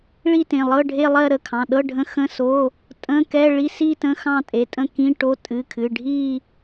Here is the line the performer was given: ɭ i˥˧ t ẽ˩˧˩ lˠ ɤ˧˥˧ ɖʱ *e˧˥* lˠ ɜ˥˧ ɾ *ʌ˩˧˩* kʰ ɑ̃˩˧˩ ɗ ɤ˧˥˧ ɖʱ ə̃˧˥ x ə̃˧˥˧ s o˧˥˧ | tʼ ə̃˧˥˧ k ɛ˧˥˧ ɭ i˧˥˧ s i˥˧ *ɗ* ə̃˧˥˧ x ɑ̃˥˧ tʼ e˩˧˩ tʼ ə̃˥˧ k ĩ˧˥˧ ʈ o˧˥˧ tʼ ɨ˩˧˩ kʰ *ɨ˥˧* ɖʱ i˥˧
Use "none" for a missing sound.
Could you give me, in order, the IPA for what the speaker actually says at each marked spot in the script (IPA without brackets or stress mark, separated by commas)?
e˥˧, ə˩˧˩, t, ɨ˩˧˩